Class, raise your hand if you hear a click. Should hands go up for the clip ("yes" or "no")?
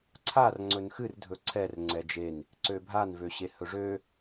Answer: yes